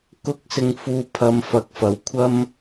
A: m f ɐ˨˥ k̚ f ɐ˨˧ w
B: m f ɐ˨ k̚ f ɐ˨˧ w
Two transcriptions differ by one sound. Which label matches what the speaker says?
A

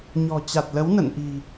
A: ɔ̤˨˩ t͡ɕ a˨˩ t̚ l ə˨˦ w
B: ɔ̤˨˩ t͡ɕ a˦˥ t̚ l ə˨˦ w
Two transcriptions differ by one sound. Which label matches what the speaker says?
A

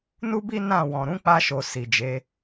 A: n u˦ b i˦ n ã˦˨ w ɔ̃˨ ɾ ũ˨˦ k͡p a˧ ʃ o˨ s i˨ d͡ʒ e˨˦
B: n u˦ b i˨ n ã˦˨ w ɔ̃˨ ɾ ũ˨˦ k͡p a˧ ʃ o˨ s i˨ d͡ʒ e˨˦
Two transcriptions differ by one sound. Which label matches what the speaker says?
A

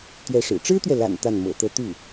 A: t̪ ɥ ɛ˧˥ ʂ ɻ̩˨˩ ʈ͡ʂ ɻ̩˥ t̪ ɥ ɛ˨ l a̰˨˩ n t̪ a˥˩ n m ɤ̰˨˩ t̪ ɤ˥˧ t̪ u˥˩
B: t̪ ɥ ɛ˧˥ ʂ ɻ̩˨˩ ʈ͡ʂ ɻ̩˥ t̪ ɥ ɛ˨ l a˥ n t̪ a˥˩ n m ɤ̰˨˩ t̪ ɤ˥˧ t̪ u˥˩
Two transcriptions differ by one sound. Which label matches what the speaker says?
A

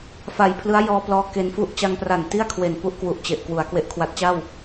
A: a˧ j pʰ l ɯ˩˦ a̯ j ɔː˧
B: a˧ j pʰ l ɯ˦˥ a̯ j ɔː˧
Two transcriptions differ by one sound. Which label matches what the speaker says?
B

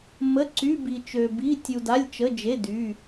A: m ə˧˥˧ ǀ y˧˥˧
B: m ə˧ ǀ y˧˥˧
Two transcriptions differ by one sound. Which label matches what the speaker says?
A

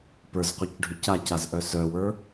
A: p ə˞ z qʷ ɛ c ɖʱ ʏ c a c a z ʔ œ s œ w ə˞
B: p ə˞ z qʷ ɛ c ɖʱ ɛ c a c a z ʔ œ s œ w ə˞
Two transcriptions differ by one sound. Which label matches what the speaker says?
A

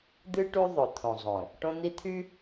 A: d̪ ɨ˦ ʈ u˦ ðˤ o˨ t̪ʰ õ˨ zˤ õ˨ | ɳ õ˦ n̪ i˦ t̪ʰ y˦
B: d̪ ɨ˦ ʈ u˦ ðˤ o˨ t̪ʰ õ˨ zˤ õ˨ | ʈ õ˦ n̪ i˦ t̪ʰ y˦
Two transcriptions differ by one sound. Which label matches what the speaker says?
B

